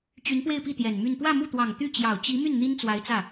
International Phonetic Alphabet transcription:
t͡ɕ y˧˥ n p w e˥˧ ɪ̯ p i˥˩ t̪ j ɛ˨˩ n m y˥˧ n p w ä˥˧ m u˥˩ t̪ w ɑ˨˩ ŋ t̪ y˥˩ t͡ɕ j ɑ˨˩ ʊ̯ t͡ɕ i˧˥ m y˥˩ n n̪ i˥ n t͡s w a˧˥ ɪ̯ t͡s ä˥˩

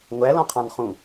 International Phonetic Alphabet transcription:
ŋʷ æ l ɔ̃ qʰ ɑ̃ n χ ũ

